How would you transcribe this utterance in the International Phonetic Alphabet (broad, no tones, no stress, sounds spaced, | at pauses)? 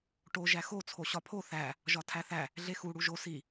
ʈ o ʒ æ x o t͡sʰ o ɕ ɒ pʰ o θ æ | ʒ ɒ tʰ æ θ æ | ɮ e x u ɽ u ʒ o s i